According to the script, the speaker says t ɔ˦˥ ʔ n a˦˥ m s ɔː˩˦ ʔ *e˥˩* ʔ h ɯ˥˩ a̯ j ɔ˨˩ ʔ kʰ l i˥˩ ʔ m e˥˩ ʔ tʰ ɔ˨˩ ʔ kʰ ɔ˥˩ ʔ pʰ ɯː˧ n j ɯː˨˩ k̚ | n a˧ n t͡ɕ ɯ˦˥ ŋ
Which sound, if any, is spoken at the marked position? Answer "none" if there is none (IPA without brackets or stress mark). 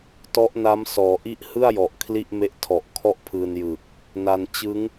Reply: i˥˩